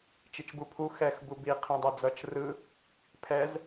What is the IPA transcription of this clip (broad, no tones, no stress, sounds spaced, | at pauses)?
t͡ʃ i t͡ʃ b u pʰ u x ɛ x b u b i qʰ ĩ dˤ ɛ d͡z ʌ t͡ʃ r ɯ | pʰ ɛ z